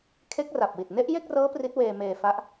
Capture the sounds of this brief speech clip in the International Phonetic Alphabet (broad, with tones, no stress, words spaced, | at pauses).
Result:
kʰe˦˥k̚ra˨˩p̚wi˨˩t̚ ne˦˥ʔje˥˩k̚rɤː˦˥ pri˦˥t̚weː˧ meː˧ fa˦˥ʔ